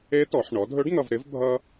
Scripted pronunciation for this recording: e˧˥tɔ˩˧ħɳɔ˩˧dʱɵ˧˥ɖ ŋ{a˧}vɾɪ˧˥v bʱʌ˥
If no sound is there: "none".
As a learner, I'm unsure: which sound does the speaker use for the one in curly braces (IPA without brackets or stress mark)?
ʌ˧